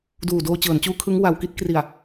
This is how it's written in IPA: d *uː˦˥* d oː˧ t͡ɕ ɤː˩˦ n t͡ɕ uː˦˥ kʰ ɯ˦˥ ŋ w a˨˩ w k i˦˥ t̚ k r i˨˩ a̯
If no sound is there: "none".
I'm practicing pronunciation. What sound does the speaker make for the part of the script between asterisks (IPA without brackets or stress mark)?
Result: uː˨˩